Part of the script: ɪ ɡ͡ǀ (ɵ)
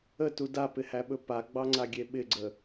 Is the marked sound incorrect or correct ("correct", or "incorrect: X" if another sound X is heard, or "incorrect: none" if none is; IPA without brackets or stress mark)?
incorrect: ə